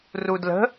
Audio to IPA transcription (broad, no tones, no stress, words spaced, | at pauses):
rudlə̤